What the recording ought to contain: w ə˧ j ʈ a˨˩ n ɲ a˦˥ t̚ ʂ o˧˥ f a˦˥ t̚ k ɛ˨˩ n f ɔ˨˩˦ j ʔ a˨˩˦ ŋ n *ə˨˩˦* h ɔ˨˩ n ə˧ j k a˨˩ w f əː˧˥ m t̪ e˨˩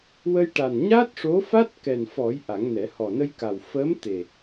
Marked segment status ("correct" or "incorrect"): incorrect